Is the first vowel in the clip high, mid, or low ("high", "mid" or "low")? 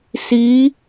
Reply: high